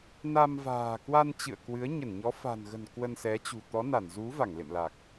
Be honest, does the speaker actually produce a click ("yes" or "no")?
no